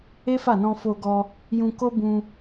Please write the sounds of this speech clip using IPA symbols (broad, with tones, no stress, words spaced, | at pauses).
e˦fa˦˨nɔ̃˧ fo˧ɡɔ˧ | jũ˧ ko˦bũ˧